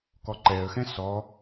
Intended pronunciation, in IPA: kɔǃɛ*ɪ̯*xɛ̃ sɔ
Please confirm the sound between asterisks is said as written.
no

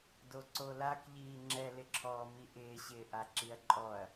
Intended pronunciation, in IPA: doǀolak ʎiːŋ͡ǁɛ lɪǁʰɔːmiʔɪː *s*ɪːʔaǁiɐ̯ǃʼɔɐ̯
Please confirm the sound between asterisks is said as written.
no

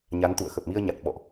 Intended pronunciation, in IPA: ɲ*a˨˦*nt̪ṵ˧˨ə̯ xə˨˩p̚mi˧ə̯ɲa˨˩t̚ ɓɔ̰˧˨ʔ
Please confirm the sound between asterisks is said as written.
yes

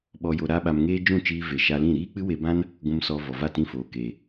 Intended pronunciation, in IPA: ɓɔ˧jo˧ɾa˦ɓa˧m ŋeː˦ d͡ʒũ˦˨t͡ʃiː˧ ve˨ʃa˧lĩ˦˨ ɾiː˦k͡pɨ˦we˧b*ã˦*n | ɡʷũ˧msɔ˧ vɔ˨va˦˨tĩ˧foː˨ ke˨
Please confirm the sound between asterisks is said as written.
yes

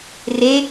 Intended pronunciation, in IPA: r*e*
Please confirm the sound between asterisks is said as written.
yes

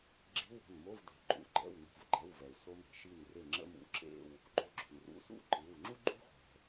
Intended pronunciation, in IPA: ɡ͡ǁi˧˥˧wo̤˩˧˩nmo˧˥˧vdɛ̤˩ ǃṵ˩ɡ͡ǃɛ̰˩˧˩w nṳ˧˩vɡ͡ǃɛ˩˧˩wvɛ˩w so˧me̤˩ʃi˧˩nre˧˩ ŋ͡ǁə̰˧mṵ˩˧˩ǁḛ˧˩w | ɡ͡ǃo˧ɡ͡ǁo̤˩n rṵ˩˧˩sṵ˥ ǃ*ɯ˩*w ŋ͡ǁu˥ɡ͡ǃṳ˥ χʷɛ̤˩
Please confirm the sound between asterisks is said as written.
no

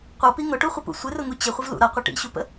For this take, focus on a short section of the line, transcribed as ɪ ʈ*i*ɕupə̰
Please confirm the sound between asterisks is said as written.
no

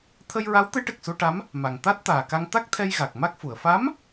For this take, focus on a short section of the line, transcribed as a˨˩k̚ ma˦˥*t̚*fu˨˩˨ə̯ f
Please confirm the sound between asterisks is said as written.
no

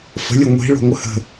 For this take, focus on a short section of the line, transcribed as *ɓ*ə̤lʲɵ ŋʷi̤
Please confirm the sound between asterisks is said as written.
no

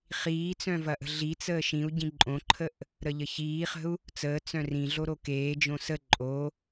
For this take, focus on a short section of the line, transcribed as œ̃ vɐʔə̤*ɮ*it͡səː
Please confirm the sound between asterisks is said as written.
yes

